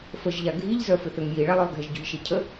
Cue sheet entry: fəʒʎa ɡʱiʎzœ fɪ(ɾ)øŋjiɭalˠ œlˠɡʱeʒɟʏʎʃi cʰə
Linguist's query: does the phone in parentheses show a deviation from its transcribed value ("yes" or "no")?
yes